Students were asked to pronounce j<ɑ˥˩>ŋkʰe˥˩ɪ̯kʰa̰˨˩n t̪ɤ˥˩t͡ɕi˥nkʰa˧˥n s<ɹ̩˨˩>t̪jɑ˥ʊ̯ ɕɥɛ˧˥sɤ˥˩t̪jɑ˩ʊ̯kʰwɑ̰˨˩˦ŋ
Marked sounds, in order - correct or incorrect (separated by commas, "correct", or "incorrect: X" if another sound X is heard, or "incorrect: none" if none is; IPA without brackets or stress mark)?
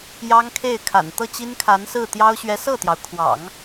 incorrect: ɑ˥, incorrect: ɹ̩˥˩